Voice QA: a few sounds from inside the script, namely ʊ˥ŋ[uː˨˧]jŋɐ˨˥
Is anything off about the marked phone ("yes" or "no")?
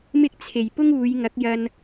no